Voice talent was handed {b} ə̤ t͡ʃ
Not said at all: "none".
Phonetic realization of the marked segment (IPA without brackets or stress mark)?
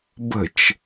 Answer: b